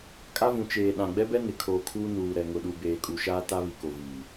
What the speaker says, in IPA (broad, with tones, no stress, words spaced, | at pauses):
kʼa˦vũ˨ t͡ʃeː˨ ɗã˨ɡ͡bɛ˦bɛ˦ nɪ˨kʰoː˨kʰuː˦ nuː˨ ɾɛ˨ŋʊ˨ɗu˨ beː˨kʼu˨ʃaː˦ ta˦ βi˨ko˨viː˨